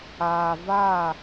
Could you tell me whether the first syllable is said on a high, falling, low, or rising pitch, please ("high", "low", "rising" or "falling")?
low